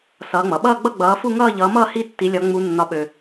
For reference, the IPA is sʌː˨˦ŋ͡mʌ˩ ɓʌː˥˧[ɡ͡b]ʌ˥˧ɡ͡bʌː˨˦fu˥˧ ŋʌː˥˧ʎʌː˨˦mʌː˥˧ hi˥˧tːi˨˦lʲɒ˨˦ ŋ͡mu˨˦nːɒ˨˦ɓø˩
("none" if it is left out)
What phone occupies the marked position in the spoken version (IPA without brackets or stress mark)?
ɡ͡b